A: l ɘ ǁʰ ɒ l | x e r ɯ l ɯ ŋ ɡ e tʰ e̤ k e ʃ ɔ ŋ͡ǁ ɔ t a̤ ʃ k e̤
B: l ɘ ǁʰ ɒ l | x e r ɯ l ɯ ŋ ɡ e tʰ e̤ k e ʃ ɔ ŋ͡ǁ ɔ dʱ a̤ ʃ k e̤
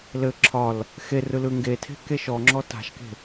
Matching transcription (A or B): A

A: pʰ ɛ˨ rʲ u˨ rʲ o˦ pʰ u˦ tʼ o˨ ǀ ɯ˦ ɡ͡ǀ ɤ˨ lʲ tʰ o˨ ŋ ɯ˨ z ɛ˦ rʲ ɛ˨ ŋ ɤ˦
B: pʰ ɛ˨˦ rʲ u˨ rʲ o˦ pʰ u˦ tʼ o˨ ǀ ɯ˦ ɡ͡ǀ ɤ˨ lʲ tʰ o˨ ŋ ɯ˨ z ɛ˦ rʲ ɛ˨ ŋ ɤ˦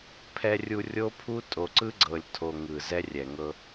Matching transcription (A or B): A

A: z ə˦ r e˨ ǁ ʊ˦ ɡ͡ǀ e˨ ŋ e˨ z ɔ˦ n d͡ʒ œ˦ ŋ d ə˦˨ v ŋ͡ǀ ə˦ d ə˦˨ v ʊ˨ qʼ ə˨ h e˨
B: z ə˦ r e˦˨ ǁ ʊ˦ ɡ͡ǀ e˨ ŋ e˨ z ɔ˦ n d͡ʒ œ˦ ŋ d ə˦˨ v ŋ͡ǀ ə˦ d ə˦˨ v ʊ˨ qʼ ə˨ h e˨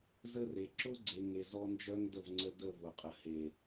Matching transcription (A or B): A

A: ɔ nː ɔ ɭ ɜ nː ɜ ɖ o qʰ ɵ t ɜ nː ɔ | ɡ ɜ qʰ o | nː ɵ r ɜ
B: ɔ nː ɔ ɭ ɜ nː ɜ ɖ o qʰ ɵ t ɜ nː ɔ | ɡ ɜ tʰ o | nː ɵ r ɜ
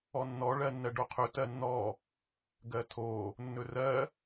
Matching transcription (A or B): B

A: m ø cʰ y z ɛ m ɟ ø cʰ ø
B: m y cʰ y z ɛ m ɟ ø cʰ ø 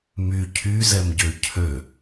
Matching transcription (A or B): B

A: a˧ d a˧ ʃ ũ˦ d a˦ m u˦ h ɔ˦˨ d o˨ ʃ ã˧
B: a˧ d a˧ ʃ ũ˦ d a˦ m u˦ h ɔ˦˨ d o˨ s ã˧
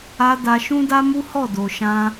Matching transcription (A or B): A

